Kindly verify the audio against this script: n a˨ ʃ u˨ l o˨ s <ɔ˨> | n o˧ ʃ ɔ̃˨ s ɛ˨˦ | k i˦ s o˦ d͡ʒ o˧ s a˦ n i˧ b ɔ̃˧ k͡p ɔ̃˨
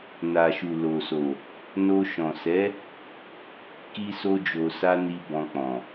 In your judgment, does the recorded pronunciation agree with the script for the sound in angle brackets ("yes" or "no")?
no